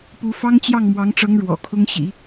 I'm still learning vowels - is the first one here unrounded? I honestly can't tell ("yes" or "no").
no